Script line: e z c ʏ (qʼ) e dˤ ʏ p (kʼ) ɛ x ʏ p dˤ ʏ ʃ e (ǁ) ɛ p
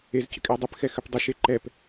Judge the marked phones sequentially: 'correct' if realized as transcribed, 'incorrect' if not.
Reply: incorrect: kʼ, incorrect: x, incorrect: ǃ

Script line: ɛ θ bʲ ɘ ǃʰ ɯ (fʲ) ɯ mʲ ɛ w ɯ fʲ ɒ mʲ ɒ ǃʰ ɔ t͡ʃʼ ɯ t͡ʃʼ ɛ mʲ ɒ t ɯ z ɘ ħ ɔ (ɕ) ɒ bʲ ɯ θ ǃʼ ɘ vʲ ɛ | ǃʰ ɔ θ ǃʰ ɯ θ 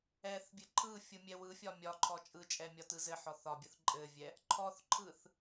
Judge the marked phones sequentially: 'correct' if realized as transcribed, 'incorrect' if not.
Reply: correct, incorrect: θ

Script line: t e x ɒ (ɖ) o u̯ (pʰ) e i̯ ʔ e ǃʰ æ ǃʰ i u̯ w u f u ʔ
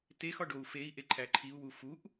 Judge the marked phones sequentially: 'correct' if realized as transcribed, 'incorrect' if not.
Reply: correct, incorrect: f

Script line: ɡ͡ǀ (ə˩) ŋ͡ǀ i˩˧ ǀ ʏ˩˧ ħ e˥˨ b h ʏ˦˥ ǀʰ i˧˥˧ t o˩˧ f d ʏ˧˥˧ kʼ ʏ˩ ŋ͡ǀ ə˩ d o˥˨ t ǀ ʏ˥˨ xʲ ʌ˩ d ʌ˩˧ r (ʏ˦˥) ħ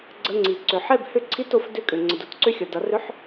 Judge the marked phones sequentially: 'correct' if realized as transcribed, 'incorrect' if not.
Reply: incorrect: ə˧˥˧, incorrect: ʏ˧˥˧

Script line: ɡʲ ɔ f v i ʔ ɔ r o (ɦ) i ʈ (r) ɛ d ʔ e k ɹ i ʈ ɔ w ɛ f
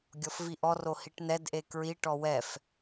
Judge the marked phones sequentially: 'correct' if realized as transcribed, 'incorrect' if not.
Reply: incorrect: h, incorrect: n

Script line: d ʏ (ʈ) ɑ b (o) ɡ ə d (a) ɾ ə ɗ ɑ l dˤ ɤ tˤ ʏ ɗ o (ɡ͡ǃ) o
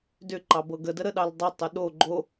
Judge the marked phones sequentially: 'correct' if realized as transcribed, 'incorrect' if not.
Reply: incorrect: ǃ, incorrect: ɤ, incorrect: ə, correct

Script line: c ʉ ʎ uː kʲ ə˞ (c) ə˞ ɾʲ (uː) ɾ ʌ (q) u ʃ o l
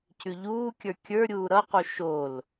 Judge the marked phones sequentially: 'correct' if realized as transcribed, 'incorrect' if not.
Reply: incorrect: kʲ, correct, correct

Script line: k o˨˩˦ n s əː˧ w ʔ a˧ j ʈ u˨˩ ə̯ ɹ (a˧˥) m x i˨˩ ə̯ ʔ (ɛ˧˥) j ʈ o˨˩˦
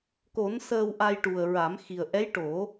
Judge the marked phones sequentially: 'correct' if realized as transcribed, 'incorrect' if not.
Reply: incorrect: a˨˩˦, correct

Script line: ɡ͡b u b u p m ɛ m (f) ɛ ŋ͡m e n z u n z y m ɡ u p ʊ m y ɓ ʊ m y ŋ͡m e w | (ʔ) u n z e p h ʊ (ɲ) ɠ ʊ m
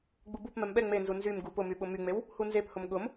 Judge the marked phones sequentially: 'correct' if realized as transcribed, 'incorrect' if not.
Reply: incorrect: ɓ, incorrect: h, incorrect: m

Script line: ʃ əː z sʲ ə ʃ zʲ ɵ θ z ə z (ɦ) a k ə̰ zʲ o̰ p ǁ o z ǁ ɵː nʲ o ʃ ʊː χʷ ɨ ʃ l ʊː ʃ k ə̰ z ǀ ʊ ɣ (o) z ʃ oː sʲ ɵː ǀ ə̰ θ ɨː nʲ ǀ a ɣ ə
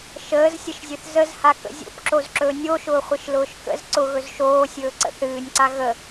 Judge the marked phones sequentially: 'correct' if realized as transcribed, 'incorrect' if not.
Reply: incorrect: h, incorrect: ɵ

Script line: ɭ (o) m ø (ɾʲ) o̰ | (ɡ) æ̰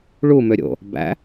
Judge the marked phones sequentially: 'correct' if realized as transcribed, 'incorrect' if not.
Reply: incorrect: u, correct, incorrect: b

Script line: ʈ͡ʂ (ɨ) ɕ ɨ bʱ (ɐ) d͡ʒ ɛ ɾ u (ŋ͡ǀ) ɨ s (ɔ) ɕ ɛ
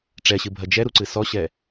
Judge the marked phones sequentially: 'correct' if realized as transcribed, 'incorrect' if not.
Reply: incorrect: ɛ, correct, incorrect: ǀ, correct

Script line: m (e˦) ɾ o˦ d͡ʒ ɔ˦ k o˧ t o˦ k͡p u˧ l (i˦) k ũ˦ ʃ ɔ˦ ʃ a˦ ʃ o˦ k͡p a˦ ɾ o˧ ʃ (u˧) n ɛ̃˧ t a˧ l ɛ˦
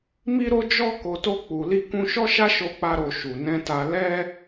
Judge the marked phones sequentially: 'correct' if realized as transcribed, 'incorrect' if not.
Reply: incorrect: i˦, correct, incorrect: u˨

